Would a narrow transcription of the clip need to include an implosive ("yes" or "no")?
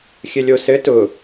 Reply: no